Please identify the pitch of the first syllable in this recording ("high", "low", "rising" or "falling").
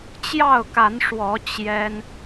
falling